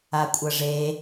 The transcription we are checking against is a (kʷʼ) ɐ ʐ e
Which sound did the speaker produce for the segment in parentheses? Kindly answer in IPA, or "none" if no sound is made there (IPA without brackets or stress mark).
kʷʼ